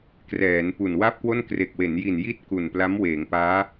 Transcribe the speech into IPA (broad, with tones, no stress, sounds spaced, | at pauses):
k r ɛː˩˦ n p u˨˩ n w a˥˩ p̚ k w o˥˩ n k r e˨˩ k̚ w e˩˦ n j i˨˩ n j i˥˩ t̚ k u˨˩ n p l a˦˥ m w eː˩˦ ŋ p aː˦˥